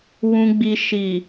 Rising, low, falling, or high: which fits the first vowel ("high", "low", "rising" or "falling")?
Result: low